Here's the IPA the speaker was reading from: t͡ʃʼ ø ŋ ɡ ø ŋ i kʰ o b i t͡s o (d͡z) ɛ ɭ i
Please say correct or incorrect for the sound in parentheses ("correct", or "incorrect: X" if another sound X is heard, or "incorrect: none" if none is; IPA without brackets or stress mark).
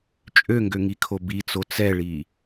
incorrect: t͡s